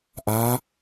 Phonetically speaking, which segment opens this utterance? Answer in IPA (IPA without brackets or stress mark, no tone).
ʔ